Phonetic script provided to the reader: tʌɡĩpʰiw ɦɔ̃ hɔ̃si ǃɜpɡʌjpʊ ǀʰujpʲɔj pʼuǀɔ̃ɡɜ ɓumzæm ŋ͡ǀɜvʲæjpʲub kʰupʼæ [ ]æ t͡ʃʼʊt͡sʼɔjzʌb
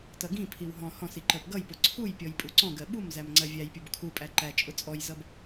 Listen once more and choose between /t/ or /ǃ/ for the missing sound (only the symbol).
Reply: ǃ